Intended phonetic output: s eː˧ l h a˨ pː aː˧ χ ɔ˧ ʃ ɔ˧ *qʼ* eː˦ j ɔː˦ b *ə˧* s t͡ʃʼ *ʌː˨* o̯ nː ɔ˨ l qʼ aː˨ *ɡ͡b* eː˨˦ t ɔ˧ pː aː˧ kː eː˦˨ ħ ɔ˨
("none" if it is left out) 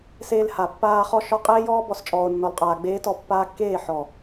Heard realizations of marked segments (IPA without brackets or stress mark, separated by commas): qʼ, ɔ˧, ɔː˨, ɡ͡b